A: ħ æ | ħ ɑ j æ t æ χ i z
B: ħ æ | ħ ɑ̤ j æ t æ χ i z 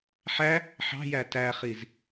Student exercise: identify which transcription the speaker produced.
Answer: B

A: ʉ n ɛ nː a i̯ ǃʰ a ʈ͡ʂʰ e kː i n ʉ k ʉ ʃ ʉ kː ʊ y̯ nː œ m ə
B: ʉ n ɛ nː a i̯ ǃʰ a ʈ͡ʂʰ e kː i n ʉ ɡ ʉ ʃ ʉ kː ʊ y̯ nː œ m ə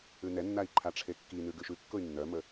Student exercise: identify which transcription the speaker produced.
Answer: B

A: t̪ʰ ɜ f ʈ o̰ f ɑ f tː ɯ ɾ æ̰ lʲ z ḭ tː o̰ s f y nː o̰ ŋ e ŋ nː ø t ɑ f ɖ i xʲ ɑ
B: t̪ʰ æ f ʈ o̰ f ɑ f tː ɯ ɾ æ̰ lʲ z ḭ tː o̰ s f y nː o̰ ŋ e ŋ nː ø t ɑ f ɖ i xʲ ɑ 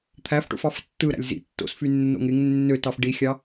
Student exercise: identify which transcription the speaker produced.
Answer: B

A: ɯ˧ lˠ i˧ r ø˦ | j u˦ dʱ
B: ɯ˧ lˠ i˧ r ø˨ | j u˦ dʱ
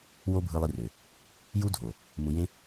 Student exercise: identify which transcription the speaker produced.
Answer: B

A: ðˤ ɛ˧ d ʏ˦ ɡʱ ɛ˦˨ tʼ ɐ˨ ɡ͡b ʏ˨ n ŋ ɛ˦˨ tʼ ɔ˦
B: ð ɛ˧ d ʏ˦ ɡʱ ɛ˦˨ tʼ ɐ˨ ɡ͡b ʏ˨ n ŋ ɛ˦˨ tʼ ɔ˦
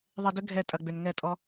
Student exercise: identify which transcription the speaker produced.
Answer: A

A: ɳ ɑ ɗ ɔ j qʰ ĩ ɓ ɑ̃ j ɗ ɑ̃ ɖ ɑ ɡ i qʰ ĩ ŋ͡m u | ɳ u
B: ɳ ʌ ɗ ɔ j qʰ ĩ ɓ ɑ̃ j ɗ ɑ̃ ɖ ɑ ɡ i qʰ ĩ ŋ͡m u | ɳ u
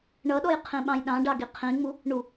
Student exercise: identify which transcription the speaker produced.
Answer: B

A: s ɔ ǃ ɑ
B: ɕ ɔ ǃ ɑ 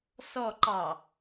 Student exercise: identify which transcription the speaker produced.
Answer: A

